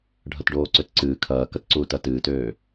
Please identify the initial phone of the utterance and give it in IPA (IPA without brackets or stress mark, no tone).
ɖʱ